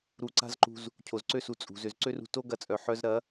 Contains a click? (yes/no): yes